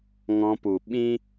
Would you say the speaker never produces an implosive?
no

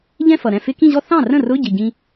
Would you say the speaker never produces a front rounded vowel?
yes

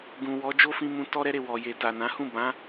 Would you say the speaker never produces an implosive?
yes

